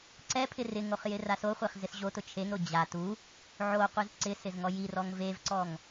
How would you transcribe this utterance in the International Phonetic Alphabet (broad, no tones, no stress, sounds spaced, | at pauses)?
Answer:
ǀ ɛ pʰ ɪ r ɪ ŋ o χ j ɪ r a s o χʷ e χ z ɪ s ʑ o t ʊ t͡ʃʰ e ŋ ɾ o d͡ʑ a t u | ʕ o qʷ i z ǀ ɪ s ɪ z ŋ ɔ j i r ɔ ŋ v e v ǀ ɔ ŋ